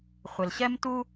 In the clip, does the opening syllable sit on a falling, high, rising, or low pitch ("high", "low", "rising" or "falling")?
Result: low